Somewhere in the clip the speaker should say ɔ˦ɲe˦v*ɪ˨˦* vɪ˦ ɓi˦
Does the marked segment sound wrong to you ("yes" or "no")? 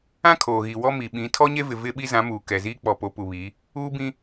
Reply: yes